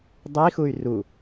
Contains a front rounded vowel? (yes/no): yes